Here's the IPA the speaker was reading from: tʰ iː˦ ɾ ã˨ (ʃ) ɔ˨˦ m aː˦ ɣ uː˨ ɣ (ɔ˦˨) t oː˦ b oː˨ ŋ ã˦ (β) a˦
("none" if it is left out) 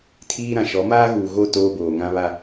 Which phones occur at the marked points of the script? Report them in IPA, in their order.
ʃ, o˦˨, β

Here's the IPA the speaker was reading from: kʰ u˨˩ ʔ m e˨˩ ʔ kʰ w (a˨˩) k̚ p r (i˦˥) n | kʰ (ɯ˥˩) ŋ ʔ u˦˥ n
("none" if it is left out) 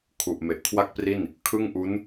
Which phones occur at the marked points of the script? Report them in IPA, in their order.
a˥˩, i˥˩, ɯ˥˩

